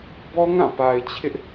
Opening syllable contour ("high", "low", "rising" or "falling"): high